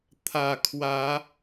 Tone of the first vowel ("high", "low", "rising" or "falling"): low